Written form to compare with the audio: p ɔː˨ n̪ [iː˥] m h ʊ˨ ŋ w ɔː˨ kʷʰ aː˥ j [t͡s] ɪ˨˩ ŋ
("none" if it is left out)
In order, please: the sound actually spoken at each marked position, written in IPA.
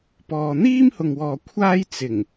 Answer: iː˥, t͡s

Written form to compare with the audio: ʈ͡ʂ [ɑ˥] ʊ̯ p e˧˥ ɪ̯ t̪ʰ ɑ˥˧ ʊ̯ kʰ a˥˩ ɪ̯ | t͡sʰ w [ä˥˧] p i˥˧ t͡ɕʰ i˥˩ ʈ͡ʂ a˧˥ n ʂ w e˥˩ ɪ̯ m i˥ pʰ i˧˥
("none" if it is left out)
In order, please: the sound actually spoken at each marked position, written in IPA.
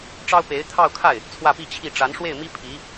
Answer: ɑ˥, ä˥˧

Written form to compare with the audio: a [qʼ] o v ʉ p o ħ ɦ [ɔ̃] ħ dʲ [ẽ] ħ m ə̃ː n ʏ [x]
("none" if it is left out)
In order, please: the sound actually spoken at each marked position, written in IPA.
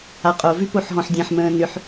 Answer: qʼ, ɔ̃, ẽ, ħ

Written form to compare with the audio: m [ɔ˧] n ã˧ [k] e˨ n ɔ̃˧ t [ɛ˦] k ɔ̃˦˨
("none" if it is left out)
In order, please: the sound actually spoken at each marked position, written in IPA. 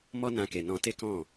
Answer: ɔ˦, k, e˦

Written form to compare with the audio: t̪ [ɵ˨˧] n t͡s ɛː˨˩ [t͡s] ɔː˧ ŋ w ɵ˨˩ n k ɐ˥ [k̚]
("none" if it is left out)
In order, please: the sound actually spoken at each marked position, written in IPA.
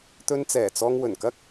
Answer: ɵ˧, t͡s, k̚

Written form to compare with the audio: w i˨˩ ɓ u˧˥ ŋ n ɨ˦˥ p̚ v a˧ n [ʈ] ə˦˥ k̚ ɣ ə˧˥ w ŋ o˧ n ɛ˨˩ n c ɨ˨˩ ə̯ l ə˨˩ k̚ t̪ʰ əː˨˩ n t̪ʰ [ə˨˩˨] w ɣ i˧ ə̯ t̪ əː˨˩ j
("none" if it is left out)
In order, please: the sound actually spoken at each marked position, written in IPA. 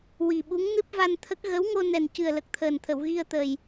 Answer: t̪ʰ, ə˨˩˨

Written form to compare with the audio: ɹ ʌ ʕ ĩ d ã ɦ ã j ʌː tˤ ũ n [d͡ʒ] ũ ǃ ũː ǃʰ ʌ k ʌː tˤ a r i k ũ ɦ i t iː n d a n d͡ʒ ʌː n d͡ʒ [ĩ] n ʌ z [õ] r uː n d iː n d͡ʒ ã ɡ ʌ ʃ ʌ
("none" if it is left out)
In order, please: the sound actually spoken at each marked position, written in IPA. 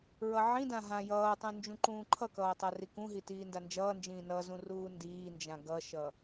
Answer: d͡ʒ, ĩː, ũ

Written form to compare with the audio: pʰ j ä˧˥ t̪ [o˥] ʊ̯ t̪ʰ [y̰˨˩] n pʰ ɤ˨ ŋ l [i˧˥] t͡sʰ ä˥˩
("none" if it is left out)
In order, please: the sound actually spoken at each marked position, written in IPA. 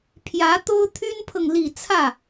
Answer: o˥, y˥, i˨˩

